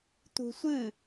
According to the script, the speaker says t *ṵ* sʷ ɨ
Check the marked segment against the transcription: incorrect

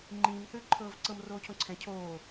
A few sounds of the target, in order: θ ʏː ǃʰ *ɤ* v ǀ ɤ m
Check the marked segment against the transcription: incorrect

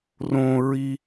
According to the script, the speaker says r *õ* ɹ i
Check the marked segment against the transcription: correct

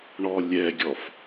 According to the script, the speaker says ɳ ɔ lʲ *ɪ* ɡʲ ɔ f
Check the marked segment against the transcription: incorrect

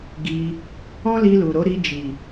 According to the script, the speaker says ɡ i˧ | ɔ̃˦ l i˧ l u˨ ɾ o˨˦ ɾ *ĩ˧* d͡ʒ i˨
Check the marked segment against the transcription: incorrect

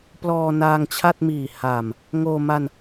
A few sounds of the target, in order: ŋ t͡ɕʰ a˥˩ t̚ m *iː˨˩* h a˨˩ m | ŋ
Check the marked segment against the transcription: correct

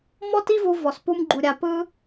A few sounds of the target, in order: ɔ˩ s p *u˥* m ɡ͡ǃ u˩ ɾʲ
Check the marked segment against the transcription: incorrect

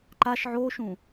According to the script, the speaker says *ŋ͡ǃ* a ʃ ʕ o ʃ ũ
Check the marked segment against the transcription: incorrect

